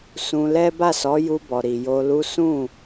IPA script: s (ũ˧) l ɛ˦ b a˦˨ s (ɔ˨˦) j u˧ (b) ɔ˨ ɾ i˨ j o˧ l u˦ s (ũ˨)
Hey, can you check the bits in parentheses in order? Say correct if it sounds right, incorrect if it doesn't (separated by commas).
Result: correct, correct, correct, incorrect